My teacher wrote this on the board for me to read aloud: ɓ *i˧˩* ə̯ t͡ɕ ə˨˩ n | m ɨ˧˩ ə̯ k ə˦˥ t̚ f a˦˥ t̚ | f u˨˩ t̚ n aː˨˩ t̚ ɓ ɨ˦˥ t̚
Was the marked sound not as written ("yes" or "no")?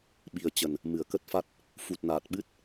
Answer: yes